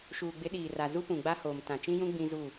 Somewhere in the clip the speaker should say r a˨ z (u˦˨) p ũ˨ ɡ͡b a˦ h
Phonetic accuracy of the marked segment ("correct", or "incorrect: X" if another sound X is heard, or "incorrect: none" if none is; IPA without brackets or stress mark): incorrect: u˦